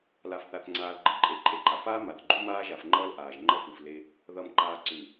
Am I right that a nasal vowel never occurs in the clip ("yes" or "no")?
yes